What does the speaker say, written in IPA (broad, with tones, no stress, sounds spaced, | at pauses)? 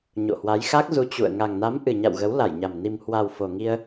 ɲ o̰˧˨ h w a˨˦ j x a˦˥ k̚ z u˧ t͡ɕ ṵ˧˨ ə̯ ŋ a˨˩ ŋ n a˨˦ m ʔ ɨ˨˩ ɲ a̰˧˨ w ɣ ə˨˦ w l a˧˩ j ɲ a˨˩ m n i˨˩ m h w a˨˩ w f o˨˩ ŋ i˧ ə̯